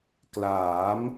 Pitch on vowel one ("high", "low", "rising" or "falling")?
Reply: rising